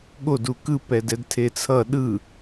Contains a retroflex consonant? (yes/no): no